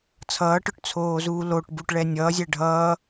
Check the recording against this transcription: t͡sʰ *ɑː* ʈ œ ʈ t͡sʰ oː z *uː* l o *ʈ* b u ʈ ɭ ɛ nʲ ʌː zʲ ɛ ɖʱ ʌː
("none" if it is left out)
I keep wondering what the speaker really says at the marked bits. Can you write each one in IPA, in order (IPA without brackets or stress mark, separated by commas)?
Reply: ʌː, uː, ʈ